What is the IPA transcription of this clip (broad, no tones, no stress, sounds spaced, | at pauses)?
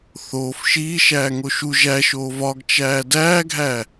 θ oː f ʃ iː ʃ æː ŋ o ʃ u ʒ æ ʃ oː v ɒ ɡ t͡ʃ æː d æː ɡʱ æ